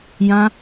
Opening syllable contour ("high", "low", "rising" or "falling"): high